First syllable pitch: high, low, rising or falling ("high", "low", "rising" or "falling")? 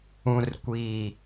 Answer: low